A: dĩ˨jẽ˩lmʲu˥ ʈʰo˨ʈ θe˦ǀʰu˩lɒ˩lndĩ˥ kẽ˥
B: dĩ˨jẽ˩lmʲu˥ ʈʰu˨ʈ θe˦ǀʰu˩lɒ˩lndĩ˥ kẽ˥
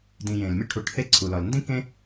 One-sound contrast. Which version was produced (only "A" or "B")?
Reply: B